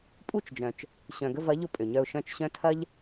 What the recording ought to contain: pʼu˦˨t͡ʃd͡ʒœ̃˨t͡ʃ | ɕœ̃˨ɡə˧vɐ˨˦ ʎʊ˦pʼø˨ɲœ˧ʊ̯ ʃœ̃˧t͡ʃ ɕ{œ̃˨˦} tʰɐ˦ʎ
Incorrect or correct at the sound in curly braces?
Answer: incorrect: œ̃˦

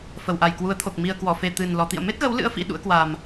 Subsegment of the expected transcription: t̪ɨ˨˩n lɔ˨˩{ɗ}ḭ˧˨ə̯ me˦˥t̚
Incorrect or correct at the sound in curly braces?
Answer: incorrect: t̪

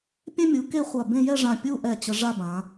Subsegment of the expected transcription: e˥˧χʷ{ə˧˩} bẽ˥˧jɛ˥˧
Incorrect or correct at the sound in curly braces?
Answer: incorrect: a˧˩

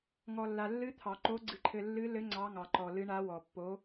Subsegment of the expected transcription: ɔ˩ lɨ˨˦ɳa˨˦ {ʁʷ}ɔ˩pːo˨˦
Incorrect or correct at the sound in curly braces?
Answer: incorrect: w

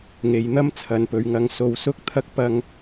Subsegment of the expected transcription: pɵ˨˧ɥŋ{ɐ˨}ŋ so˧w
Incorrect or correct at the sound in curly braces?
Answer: incorrect: ɐ˧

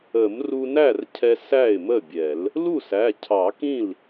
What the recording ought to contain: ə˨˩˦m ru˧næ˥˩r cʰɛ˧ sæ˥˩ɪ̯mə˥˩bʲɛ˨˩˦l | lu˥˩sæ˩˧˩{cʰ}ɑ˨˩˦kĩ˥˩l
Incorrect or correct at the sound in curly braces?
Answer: correct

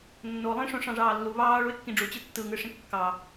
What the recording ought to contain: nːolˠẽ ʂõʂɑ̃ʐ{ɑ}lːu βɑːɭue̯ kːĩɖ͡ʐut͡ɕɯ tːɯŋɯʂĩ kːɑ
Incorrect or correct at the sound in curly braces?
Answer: incorrect: ɑː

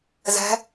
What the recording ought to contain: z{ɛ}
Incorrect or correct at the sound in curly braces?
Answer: incorrect: ɛ̤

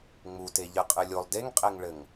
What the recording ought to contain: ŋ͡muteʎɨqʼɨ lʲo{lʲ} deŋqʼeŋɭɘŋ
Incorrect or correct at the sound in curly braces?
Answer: incorrect: lˠ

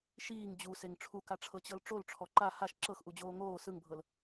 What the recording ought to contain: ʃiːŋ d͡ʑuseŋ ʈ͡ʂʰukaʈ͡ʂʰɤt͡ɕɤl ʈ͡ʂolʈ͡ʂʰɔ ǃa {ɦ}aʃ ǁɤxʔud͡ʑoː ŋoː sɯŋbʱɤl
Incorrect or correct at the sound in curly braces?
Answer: incorrect: h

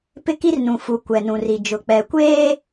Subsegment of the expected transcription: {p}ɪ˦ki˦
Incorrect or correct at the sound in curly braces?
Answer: correct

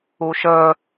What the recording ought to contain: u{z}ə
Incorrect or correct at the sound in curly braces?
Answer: incorrect: ʃ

